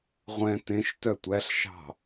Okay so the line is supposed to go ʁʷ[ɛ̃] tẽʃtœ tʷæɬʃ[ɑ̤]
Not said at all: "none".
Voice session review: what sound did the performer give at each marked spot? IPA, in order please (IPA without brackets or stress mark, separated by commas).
ɛ̃, ɑ̤